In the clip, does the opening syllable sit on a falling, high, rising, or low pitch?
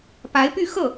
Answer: rising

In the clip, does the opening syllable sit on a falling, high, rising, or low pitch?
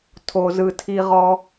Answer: low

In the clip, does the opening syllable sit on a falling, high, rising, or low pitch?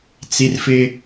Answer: high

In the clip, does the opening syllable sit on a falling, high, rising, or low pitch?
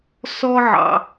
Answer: high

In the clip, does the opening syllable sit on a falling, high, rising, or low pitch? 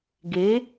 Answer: rising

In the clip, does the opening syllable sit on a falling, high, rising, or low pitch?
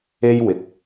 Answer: high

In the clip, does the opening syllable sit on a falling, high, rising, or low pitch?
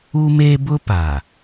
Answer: high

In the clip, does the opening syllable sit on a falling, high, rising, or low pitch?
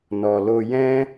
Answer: low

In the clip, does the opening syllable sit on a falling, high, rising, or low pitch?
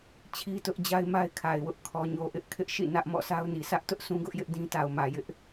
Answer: high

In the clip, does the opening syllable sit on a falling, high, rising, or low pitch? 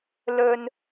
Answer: high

